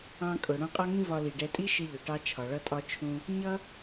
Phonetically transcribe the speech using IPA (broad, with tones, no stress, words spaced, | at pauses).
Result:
ɑ̃˧kʼʊ˩ ɽũ˧qʼɒ˥ŋĩ˥ vɒ˧li˩ɖɛ˧ tʼi˥ʃɪ˧ʎʊ˩ʈɑ˧ t͡ʃʰɒ˩ɭʌ˧tʼɒ˧ t͡ʃʰũ˧ | ɲʌ˥